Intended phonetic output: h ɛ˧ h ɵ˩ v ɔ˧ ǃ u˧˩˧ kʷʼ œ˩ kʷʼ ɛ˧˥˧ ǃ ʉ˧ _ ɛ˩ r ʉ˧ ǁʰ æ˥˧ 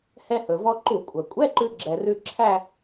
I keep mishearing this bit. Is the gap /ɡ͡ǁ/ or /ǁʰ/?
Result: ɡ͡ǁ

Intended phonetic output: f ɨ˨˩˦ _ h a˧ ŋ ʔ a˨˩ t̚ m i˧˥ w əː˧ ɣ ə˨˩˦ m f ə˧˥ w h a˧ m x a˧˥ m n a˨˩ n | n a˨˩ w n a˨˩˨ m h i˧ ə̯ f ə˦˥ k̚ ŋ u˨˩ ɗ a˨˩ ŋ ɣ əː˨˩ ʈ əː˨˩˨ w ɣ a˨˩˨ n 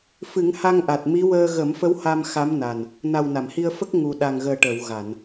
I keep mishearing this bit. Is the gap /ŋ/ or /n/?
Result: ŋ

